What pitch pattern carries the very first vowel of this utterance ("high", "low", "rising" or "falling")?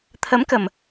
rising